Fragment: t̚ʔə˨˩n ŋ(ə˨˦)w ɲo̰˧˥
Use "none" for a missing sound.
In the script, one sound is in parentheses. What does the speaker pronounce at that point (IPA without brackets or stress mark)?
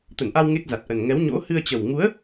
ɛ˨˦